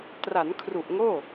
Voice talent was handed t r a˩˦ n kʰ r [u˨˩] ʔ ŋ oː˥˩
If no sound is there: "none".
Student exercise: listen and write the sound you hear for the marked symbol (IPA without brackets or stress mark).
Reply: u˨˩